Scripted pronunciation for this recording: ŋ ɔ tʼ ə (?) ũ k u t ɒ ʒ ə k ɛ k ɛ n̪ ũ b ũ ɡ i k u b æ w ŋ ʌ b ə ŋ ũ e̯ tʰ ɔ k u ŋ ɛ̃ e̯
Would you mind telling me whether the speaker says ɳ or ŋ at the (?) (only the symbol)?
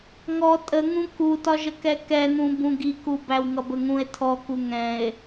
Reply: ŋ